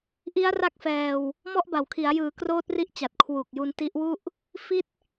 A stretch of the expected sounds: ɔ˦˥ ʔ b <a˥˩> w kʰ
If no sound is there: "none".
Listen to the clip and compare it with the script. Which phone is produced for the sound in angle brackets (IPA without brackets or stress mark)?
a˨˩